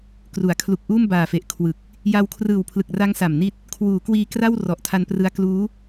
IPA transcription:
k r u˩˦ a̯ kʰ l u˨˩ k̚ ʔ uː˥˩ m b aː˨˩ f e˨˩ ʔ kʰ w ɯ˨˩ k̚ | j a˧ w kʰ r ɯː˨˩ w pʰ l ɯ˨˩ k̚ r a˦˥ ŋ s a˨˩ m n i˥˩ t̚ | kʰ w uː˩˦ k w iː˧ k r a˥˩ w r ɔ˨˩ ʔ tʰ a˧ n p r ɯ˦˥ a̯ k l uː˦˥

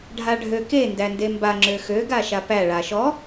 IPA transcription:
ɖʱ a ɖʱ ø k e n d æ n d e m b a ŋ͡ǁ ø x ø ɡ a ʃ a p æ ɭ a ʃ ɔ

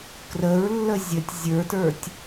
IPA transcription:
k r ə ɹ lː ə zʲ ə tʲ zʲ ə˞ t ə˞ tʲ

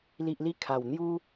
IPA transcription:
l i˨ ʔ l i˧ kʰ a˨˩ w n̪ j u˦

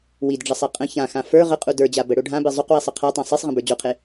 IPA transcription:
w i d ɖ͡ʐ ə sˤ e qʼ ə̃ ç ã x ã f ə˞ ʁ ə qʼ u d ə˞ d͡ʑ a b ə ɽ o ɖʱ ã b e zˤ o q w i sˤ ə qʰ a tˤ ã sˤ e sˤ ʁ ə̃ b ə˞ d͡ʑ o qʰ e

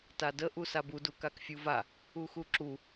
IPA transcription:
t a d ə ʔ u s a b u d u k a k fʲ u v a | u x u ǁ u

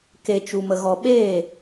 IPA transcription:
k e˨ t͡ʃ u˨ m ə˨ ɣ ɔ˨ ɓ eː˦˨

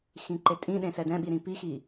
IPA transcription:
x ĩ ǃ e tʼ ĩ ɗ ẽ s ɛ d ɛ̃ ɓ i ɾ ĩ p i x i

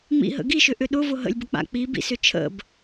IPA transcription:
ŋ͡m ḭ ɦ ə̰ ɡ i ʃ ʏ ʔ ʏ ɗ ʊ v ʊ ɦ ə̰ lʲ b ə k͡p a̰ k͡p i b ḭ s ʏ t͡ʃʰ ə̰ b

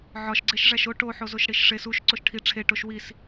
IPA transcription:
ʕ ɒ ʃ ɡ͡ǀ e ʃ ʐ æ ʃ o ʈ o ħ o z o ʃ ɽ i ʃ ʂ e s u ʃ ǀ o ʃ ʈʰ i ʈ͡ʂʰ e ʈ o ʃ w i s

